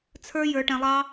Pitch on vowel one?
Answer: high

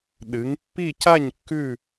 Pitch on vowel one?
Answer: rising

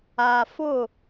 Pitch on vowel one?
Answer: low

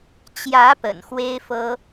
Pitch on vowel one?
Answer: rising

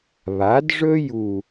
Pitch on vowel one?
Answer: rising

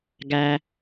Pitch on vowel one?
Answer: low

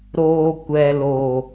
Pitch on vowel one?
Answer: low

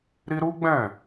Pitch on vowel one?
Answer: high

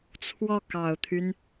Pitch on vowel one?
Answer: falling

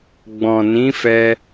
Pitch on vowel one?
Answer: low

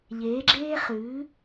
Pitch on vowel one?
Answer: rising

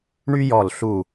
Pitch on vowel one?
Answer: high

